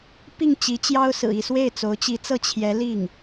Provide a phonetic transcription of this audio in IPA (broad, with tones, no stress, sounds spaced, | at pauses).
p i˥˩ ŋ t͡ɕ i˧˥ t͡ɕ j ɑ˥ ʊ̯ s ɹ̩˨˩ i˥˧ s w e˥˩ ɪ̯ t͡s o˧˥ ʊ̯ t͡ɕ i˧˥ t͡s ɤ˥˩ t͡ɕʰ j ɛ˧˥ l i˥˩ ŋ